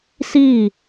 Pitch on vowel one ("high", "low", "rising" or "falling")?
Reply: falling